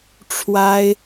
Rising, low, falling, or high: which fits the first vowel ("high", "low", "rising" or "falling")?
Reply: high